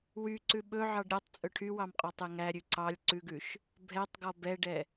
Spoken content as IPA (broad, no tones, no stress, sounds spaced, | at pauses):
w y ǀ ʉ ɓ ɵ ʕ ɑ ɖ ɾʲ ɔ tˤ t͡sʼ ɵ ʈʰ y w ɑ m qʼ ɔ tˤ e ŋ æ ɾʲ ʉ ǀ ɑ lʲ ǀ ʉ ɡ ʉ ʃ | bʱ ɛ tˤ ɡ ɔ b ɛ ɖ ɛ